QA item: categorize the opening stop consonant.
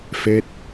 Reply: plain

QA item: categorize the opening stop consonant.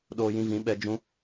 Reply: implosive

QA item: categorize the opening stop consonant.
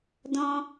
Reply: plain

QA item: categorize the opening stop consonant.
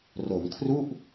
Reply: aspirated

